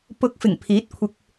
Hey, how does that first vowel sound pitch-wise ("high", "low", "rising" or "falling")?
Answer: rising